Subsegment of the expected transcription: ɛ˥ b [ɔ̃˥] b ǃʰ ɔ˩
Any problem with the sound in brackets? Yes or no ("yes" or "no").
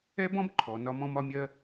no